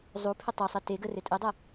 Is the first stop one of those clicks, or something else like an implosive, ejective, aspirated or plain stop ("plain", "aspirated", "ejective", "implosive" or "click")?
aspirated